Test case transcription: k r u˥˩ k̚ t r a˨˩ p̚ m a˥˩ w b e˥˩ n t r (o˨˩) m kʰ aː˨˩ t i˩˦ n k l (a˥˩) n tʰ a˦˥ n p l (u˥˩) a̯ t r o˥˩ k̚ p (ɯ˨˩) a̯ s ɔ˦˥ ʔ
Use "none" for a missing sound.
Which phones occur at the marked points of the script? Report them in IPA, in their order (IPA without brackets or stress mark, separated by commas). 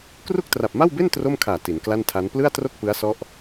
o˥˩, a˥˩, ɯ˥˩, ɯ˦˥